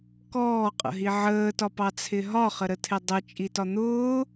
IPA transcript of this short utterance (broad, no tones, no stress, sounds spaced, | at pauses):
k ɔː qʼ ə̰ ɦ i ʕ əː t ɒ p ɑ t͡sʰ ɪ ɦ ɒ χ ə ɾ ə tʰ ɪ dˤ ə t͡ʃʼ i t ɒ n̪ ʊː